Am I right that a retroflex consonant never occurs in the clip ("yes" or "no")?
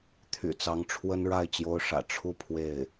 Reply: no